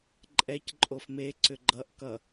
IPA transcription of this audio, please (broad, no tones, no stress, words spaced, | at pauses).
ǃʼɛc ǃʼofme ǀʏɡ͡ǃʌʔ kʌ